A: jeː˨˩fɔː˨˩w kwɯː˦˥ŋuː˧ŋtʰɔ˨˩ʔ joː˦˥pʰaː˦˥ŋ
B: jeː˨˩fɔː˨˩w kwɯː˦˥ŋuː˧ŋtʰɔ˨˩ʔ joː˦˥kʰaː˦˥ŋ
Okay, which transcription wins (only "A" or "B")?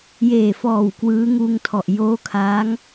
B